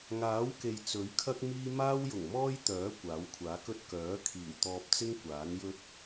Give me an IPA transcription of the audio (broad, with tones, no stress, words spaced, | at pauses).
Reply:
ŋaː˨˥wke˨j t͡sɵ˨˥ɥkʰɐ˥k̚miː˥ maː˥wjʊ˨˩ŋmɔː˥j t̪œː˨˥ kʷaː˨˥wkʷʰaː˨˥kɵ˥t̚ kœː˨˥kʰiː˨˩wt̪ɔː˧p̚t͡sɪ˥ŋ kʷaː˨˥njɵ˥t̚